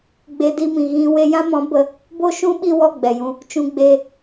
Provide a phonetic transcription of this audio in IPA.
ɡ͡be˧di˧mĩ˨ ɣĩ˧ we˧jã˦mɔ̃˨˦ bə˧ | bo˦ʃũ˦ ɓi˦˨wɔ˦˨ ɡ͡bɛ˨jũ˧ | t͡ʃũ˧ɡ͡beː˧

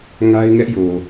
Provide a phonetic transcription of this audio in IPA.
ŋa˦ɪ̯ŋɛ˦ʔjo˨

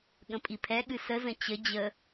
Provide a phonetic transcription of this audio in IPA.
ɠə̃pʼipʰɛɠɨ səzə̃ t͡ɕə d͡ʑə

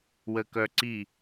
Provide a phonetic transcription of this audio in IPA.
wəkœǀi

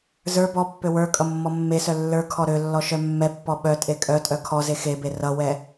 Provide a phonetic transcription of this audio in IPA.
zə˞ bɔpːø wə˞ kʼʌmːɔmːesœ lːə˞kʰɔ ɾølːɔ ʃœmːɛpːɔ ɓœ tʼekʼœtʼœ kʰɔze xebe rʌwɛ

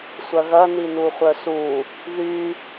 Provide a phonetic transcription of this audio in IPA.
sʷɐɣɐni nuχʷœsu | ðy

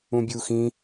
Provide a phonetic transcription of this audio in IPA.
ũbʲuxĩ

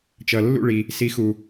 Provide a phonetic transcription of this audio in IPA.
t͡ʃʌ˩lːṵ˥˩ɭi˩ | si˩˥xu˩

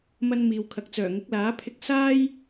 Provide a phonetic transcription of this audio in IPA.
mɐ˧n miː˨wkʰɐ˨k̚ t͡sœː˨˩ŋɪ˨˥k̚laː˨˥pʰɪ˧k̚ saː˥j

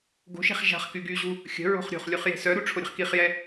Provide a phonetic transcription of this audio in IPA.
ɡo̤ʃe̤χ ʒa̤χ kyɡyʑu | xʲə̤ɹo̤χ ɾʲo̤χlʲuχ je̤sœɾu ʈ͡ʂʰoɾʲə̤χkiχjɛ

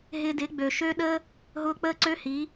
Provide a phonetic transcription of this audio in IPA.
ɦɪ˧dɪ˨˦ɡ͡bø˨ ʃø˦ ɗə˦ | ɦʊː˧k͡pəː˦ǀø˦hi˨˦

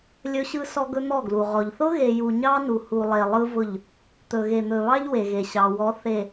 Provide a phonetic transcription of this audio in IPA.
lʲɵ˦ɕɯ˦ sɔ˦ɡɵ˦n̪ɔ˦˨ɡlu˨ ʁɔ˨ʎ θʊ˦ɣe˨ju˨ ɲɑ˦nu˨ hu˨lˠe˨ lˠɯ˦vʊ˦˨ʎ | t̪ɵ˨ɣe˨n̪ɵ˨βɑ˦ʎ we˨ɣe˨ɕɑ˨wɔ˨˦ θe˨

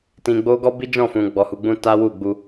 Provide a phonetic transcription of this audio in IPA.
tĩ˧ɡ͡bo˦ ɡɔ˦bi˦d͡ʒɔ̃˦˨fũ˨ ɡ͡bɔ˨hu˨ɡ͡bũ˧ ta˦wu˦˨ɡ͡bu˧

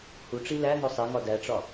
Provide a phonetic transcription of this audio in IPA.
huʈ͡ʂi læ ŋosˤeŋɒ dæʈ͡ʂɒ

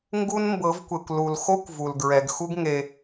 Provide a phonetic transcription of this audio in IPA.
ŋɡu˦nmbɤ˨˦vkʷe˨kʷlu˨l xo˦kʷ vu˨lɡɹɛ˨ɡxu˦ɡ ŋe˨

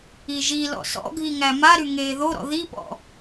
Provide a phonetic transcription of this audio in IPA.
iʒilɔ̰ sɔ̰ɡʱiŋæ maɾy ŋeːðoɾɔ̰ ðipɔ̰

